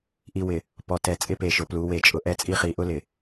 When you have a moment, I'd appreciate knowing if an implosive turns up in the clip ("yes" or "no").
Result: no